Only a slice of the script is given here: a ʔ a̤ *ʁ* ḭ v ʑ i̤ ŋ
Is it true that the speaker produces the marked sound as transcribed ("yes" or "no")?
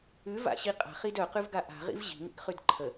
yes